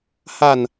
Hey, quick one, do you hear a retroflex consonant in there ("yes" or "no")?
no